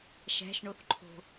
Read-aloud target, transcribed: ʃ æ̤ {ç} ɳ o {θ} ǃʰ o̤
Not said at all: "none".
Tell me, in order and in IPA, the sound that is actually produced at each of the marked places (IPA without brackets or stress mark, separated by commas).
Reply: ʃ, θ